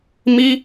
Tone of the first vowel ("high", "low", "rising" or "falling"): high